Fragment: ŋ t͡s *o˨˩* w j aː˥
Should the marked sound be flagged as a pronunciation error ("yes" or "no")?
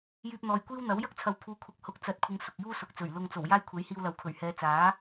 no